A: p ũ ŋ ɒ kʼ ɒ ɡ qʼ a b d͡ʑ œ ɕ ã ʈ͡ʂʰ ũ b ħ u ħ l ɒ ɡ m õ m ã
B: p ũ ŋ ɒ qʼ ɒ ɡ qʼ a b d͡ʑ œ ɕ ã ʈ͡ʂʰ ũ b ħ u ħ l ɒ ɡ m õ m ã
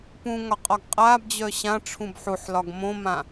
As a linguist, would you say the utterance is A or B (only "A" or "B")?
B